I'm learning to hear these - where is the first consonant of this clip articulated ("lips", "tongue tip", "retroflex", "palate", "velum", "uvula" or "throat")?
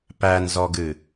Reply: lips